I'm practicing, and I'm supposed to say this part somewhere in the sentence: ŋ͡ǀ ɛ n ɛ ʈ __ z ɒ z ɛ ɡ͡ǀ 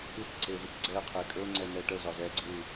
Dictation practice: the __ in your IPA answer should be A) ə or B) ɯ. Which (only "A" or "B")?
A